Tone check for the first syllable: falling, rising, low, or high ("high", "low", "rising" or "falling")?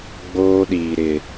high